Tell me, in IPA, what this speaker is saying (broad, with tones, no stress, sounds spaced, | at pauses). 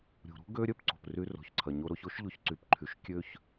ɾʲ ṳ˨ ɾ ṳ˦ ɡ ø˦ ɾʲ œ˦ p ǀ o̤˨ p r y˧ r o̤˨ ç ǀʰ ɐ˨ ɲ o˧ ɾ o˧ ç o˦ ʃ ʎ o˧ ç ǀ y˧ p ǃʰ y˧ ʃ kʲ ø˦ ç